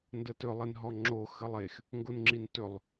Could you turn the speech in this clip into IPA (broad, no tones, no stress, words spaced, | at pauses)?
ndətɵ lˠenɦɔŋ͡ǁo xəlˠex | ŋɡonŋ͡ǁintɵlˠ